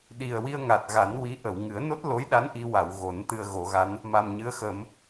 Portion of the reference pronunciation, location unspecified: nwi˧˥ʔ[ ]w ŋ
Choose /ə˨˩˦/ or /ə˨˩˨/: ə˨˩˨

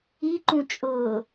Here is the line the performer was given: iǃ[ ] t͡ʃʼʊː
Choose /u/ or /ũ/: ũ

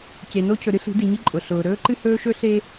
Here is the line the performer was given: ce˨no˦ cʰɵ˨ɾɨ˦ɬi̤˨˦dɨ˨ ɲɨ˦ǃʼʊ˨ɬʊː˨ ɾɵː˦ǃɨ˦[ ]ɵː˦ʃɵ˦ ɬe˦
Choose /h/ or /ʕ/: h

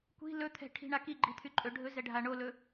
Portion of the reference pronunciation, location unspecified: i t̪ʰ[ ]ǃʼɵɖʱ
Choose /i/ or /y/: y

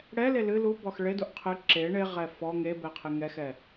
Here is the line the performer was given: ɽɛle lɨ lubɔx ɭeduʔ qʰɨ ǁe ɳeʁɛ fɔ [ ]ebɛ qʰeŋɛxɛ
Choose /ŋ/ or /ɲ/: ŋ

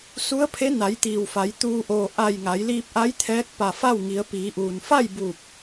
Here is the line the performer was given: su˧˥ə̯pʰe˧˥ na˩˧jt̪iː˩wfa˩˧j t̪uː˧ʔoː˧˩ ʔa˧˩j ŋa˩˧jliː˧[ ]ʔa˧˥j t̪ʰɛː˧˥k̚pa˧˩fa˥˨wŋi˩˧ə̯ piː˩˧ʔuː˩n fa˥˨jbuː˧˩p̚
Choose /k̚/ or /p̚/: p̚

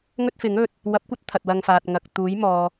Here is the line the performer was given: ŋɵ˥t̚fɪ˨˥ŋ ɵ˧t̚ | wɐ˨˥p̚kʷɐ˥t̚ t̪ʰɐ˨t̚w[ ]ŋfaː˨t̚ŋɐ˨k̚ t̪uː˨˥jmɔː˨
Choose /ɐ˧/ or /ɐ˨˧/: ɐ˧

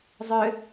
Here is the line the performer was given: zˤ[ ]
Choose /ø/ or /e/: ø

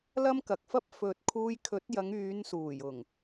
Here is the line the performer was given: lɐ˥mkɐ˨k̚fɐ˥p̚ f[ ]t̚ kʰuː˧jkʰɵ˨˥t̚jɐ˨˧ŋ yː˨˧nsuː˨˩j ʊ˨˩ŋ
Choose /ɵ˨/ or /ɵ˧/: ɵ˨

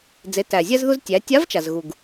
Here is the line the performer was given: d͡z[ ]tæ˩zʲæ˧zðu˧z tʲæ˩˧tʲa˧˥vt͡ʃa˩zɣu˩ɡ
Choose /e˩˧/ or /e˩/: e˩˧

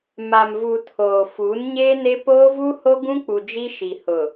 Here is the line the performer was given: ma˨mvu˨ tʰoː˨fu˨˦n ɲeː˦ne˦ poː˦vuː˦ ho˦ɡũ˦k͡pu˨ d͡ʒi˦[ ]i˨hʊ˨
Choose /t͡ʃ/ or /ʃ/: ʃ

